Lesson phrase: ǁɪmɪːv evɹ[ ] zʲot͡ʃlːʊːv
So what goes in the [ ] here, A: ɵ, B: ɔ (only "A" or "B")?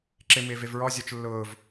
B